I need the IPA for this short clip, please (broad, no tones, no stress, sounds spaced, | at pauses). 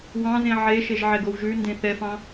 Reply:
w ɑ̃ z ẽ ʕ e ʃ e ʒ ʕ ɛ ɡ o w ʒ ʉ n d ẽ θ ɛ f ɑ̃